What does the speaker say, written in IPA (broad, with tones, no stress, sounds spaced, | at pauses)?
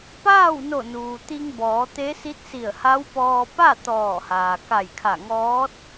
p aː˥˨ w n o˧˩ n uː˩ t̪ i˧ ŋ b ɔː˩˧ t̪ e˧˥ s i˧˥ t̚ s i˧˩ ə̯ h a˧˥ w p ɔː˧ p a˥˨ t̪ ɔː˧˩ h aː˩ k a˧˩ j kʰ a˧˩ ŋ ɔː˧˥ t̚